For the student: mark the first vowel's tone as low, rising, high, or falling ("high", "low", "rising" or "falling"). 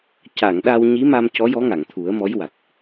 low